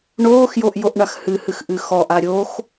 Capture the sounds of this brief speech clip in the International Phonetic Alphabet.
ɳ oː x j o ʔ j o ʔ ɳ a x h ɨ h ɨ x ʔ ɨ x ɔ ʔ a ɾʲ o x

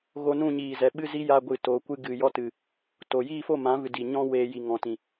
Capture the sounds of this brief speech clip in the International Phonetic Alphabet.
ɣ o˧ n ũ˦˨ ɲ iː˨ z ɛ˨ ɓ ɨ˧ z i˦ j a˧ ɡʷ ɨ˨ t o˨˦ kʷ ɨ˧ ɡ ɨ˨ j ɔ˧ t ɨ˨ | t o˨ j iː˦˨ f o˦˨ m ã˨˦ v ɨ˨ d i˨ ɲ ɔ̃˦ w eː˧ j i˨ ŋ ɔ̃˨ t ĩ˨

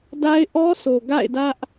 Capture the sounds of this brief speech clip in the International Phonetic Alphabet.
d a˦ ɪ̯ ʔ ɔ˦ sʰ o˨ ɡ a̰˦˨ ɪ̯ d ä˦ ʔ

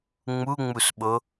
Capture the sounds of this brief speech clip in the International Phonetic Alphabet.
ŋ͡m u ŋ͡m u s ɓ o

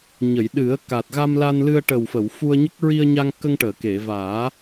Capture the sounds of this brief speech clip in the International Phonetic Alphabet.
ɲ ə˨˩˨ j ɗ ɨ˨˩˦ ə̯ k a˨˩ t̚ ɣ a˧ m l a˧ n l ɨ˧ ə̯ ʈ ə˨˩ w f ə˨˩˨ w f u˧ ə̯ ɲ ə˦˥ k̚ ɹ i˧ ə̯ ɲ a˧ ŋ k ə˧ ŋ ʈ əː˨˩˨ k e˨˩˨ v aː˨˩˦

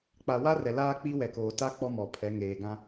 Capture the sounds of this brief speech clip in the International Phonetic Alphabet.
k͡p a˨ w a˦ r ɛ˨ l aː˦ k͡p i˦ w ɛ˨ k oː˨ t a˦ k͡p ɔ˦ m ɔ˨ pʰ ɛ˨˦ ŋ eː˨ ɡ ã˦

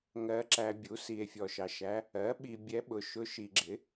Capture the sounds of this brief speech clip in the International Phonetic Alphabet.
ŋ ɜ˨ ǁ æ˨ bʲ u˩˥ s i˨ e̯ fʲ ɔ˨ ʃ ɑ˨ ʃ æ˧˥ | ɜ˩˥ ɓ i˨ bʲ ɛ˧˥ ɓ ʊ˨ ʃ ʊ˧˥ ʃ i˨ ɡ͡ǁ ɪ˩˥

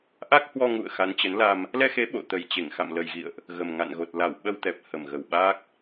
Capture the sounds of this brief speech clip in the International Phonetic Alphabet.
ʔ a˦˥ k̚ h w ɔ˧ ŋ ṵ˧˨ ə̯ x a˨˦ n t͡ɕ ə˨˦ n l a˧ m | l ɛ˧ x e˨˦ ɓ o̰˧˨ t̪ ə˨˩ j t͡ɕ e˧˩ ŋ x a̰˧˨ m l ə˨˩ j ɣ ḭ˧˨ ə̯ ʔ | ɣ ə˨˩ m ŋ a̰˧˨ n ɣ o˨˩ t̚ l a˧˩ w ɓ ə˧ w t̪ ɛ˨˩ p̚ h ə˨˩ m ɣ ə˨˩ w ɓ aː˦˥ k̚

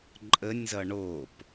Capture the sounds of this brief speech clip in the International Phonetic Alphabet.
ǃʼ ə nʲ z ʌ ɳ o p

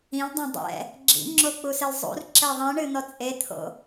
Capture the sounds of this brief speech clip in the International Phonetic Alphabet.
ĩ l dˤ õ dˤ ɛ̰ | ɡ͡ǁ ḭ ŋ͡ǁ o k͡p u s ɘ l zˤ ṵ r ǁ ɛ ðˤ ĩ ɳ ɨ n̪ ɔ t͡sʼ e t̪ʰ o̰

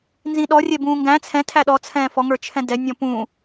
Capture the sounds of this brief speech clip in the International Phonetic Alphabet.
n z ĩ ɗ ɔ rʲ ɛ b ũː ŋ ɡ æ̃ t͡sʰ ɛ̃ tʰ æ ɗ ɔ t͡sʰ ɛ̃ː f ɔ ŋ ə˞ t͡ʃʰ ɛ̃ d ɛ nʲ ɔ̃ p ũ

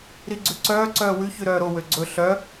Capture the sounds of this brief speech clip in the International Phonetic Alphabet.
ɾ i ɡ͡ǀ ʉ ǀ œː ǀ œː w ʉ ç ʉ ɾ œː ɾ o w ø ɡ͡ǀ ɵ ɬ œ

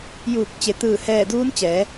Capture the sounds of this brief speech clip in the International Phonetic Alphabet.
j uː˧˩ k̚ t͡ɕ e˩ t̪ ɯː˧˩ h ɛː˧˩ d uː˧˥ n t͡ɕ ɛː˩˧

